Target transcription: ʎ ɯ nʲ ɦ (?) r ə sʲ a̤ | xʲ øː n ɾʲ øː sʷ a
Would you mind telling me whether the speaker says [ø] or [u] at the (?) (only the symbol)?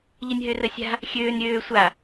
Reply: ø